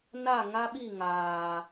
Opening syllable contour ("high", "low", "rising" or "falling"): falling